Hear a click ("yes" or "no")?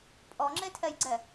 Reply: yes